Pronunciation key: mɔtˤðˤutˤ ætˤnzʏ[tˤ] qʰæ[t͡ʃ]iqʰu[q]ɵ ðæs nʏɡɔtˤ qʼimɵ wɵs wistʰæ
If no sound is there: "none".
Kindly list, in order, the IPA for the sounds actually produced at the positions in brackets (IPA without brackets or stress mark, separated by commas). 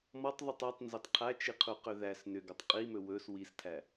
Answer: tˤ, t͡ʃ, q